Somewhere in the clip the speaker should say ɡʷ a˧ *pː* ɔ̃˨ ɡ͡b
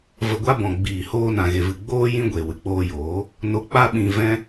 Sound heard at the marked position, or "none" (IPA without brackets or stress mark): b